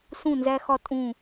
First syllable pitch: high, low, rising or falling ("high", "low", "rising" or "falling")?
falling